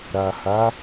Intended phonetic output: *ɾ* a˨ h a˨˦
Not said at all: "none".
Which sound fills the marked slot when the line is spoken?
ɾ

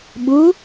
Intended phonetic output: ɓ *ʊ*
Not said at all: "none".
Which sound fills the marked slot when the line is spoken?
ʊ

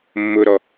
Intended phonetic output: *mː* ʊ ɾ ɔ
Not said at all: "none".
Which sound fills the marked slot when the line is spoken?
mː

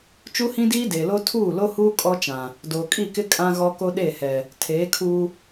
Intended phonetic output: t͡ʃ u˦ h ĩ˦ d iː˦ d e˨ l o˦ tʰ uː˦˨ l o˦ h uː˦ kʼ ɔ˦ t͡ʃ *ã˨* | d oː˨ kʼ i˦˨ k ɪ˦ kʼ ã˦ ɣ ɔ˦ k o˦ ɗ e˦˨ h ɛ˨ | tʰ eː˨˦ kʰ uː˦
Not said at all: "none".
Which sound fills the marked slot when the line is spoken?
ã˨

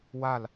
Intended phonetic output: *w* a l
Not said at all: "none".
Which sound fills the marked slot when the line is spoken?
w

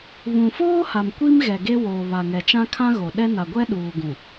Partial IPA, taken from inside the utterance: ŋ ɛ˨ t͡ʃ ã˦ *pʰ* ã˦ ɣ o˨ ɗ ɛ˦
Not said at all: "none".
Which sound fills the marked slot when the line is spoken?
kʰ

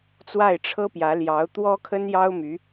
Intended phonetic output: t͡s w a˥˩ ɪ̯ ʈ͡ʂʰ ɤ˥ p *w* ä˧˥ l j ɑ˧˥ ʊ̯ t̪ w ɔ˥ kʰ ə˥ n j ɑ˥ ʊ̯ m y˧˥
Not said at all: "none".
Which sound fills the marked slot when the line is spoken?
j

